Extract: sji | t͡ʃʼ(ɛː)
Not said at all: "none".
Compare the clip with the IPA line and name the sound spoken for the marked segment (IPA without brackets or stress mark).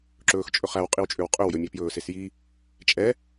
ɛ